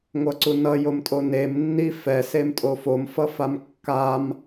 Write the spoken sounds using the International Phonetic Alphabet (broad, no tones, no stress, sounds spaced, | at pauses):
ŋʷ ʌ ǀ u n ʌ j o m tʼ o n e m nː i f ɛ s e m tʼ o f o m f ʌ f a m kː a m